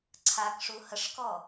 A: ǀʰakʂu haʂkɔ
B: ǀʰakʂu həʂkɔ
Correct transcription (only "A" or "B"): B